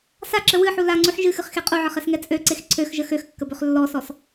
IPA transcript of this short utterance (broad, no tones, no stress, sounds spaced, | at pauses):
s a ǁ ə w ɨ ħ u l a ŋ͡ǀ u ħ ʒ ɨ x ɨ χ x e qʼ u ʕ ə χ ɛ s ŋ ɛ t͡sʼ ø ǀ e x ǀʰ ø x ʒ ə x ø x kː ə b ø χ lː ɔ s ɔ s